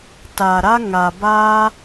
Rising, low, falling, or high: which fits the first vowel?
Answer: low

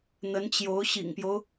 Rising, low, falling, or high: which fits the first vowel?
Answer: rising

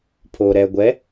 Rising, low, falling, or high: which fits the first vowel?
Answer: low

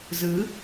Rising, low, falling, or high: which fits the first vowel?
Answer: rising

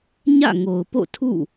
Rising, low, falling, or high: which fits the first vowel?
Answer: falling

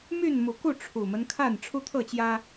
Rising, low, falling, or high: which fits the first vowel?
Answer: falling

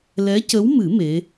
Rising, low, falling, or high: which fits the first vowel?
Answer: rising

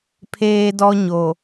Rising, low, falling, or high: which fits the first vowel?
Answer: high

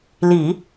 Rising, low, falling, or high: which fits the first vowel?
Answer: low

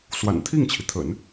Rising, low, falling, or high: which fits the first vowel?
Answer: low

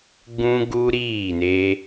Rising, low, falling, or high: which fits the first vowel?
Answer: high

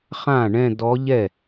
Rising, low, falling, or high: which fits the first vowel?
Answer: falling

